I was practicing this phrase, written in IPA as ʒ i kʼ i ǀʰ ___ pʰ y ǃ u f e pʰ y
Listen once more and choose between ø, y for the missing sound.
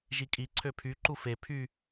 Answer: ø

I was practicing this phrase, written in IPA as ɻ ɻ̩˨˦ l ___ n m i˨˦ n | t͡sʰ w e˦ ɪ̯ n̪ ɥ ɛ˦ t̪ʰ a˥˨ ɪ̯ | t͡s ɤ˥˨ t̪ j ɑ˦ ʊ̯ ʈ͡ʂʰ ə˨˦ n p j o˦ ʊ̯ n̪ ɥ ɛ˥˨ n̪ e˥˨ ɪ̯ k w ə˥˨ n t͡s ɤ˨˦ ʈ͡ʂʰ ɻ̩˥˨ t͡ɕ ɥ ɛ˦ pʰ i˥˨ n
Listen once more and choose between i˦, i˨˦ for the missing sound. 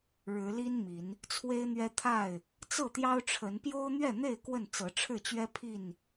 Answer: i˦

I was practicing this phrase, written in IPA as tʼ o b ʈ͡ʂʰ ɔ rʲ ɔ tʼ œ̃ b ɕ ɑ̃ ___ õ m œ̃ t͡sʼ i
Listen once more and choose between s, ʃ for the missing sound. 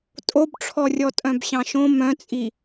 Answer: ʃ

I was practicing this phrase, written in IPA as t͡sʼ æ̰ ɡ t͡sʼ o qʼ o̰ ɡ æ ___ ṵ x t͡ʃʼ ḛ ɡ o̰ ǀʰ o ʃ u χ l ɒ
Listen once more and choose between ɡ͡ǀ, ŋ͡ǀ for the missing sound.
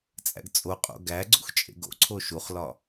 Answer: ɡ͡ǀ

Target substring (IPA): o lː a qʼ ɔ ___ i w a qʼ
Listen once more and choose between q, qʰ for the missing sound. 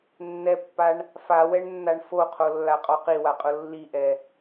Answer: q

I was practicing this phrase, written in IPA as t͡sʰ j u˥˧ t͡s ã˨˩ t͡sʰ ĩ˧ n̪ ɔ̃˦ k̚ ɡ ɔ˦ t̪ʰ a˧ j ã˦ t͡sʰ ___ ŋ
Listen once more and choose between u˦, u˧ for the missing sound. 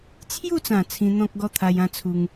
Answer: u˧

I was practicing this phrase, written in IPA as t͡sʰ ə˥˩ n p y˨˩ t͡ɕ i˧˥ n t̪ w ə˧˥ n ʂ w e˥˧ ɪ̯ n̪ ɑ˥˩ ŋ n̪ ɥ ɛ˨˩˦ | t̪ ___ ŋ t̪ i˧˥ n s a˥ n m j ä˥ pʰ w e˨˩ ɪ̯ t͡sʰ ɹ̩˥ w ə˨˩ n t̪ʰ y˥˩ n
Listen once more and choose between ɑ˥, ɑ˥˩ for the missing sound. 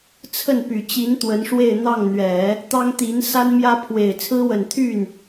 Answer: ɑ˥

